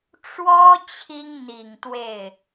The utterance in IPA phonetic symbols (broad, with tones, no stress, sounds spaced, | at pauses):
ʈ͡ʂ w ɔ˥ t͡ɕʰ i˥ ŋ n̪ i˨˩ ŋ t̪ w e˥˩ ɪ̯